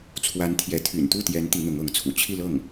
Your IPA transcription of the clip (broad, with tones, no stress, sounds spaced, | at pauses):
t͡sʰ w a˧˥ n t̪ʰ j ɛ˧˥ t̪ʰ y̰˨˩ n t̪ u˥˩ t̪ j ɛ˧˥ n t̪ i˧˥ n̪ ʊ˧˥ ŋ ɤ˧˥ ŋ t͡sʰ ṵ˨˩ t͡ɕʰ i˥˧ l ɤ˥˩ ŋ